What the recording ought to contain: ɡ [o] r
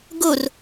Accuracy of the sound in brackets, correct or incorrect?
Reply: correct